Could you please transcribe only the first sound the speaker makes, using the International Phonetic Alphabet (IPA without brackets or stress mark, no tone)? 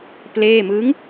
p